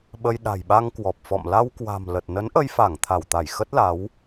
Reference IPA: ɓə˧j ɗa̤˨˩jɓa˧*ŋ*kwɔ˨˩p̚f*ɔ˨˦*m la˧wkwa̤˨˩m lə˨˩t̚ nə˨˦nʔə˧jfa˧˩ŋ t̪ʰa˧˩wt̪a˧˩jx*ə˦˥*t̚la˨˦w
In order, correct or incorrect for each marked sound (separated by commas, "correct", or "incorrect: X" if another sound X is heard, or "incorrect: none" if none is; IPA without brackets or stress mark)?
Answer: correct, incorrect: ɔ̰˧˨, correct